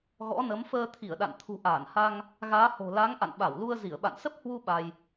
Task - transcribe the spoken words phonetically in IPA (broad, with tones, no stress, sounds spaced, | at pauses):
ɣ ɔ̰˧˥ n ə˨˦ m f əː˧ t̪ʰ i˧˩ ə̯ ɗ a̰˧˨ n t̪ʰ ṳ˨˩ ʔ aː˧˩ n h a˧ ŋ | ɣ aː˨˦ h o̤˨˩ l a˨˦ ŋ ʔ a̰˧˨ n ɓ a˧˩ w l u˧ ə̯ z i˧˩ ə̯ ɓ a̰˧˨ n s ə˦˥ p̚ h w u˧ ɓ a˧ j